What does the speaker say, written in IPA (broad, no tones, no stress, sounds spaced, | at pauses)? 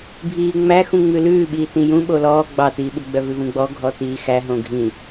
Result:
bʱ iː ŋ͡m æ x ũ ŋ͡m ʉ l ʉː ɓ iː t ĩ j ũ ɓ o l ɔː ɡ͡b ɑ t iː ɓ u ɡ͡b œ v ʉ v ũ ɡ͡b ɔ ɡʱ ɔ t iː x æ ɦ õ ɡʱ ĩ